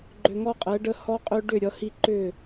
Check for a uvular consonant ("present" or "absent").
present